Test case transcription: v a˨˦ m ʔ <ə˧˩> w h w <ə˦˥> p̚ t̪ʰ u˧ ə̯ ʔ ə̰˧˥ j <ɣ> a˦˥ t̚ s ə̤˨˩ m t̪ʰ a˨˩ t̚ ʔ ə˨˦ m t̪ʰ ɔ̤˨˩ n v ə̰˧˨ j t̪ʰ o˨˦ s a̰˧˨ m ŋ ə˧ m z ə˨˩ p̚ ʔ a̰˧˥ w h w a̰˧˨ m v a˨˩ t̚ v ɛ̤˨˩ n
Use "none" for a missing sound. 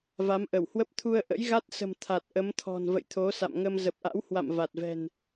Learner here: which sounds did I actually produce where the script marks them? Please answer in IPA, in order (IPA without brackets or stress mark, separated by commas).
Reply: ə˧˩, ə˦˥, ɣ